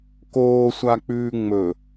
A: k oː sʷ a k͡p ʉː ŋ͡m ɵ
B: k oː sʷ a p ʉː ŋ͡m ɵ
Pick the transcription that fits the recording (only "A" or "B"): A